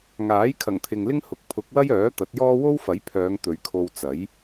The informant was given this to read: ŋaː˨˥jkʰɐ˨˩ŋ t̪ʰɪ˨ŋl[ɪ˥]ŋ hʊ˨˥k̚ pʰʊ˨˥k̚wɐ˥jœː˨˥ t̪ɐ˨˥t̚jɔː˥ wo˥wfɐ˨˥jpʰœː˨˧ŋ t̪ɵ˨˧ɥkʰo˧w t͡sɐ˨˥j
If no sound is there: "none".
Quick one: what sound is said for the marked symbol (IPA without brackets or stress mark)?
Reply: ɪ˥